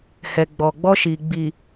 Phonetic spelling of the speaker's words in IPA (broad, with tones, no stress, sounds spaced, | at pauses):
h ɛ˨ ɡ͡b ɔ˨ ɡ͡b ɔ˦ ʃ i˨ ɡ͡b i˨